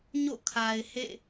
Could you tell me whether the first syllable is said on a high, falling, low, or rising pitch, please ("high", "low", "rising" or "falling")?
falling